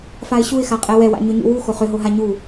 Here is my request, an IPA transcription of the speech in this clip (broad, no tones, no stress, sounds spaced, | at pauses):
f a ɪ̯ ɕ u ɪ̯ x a qʼ ɛ w ɛ w a̰ ɲ ʏ ɲ ṵ w u x o χ ʏ ɦ o ɦ a ɲ u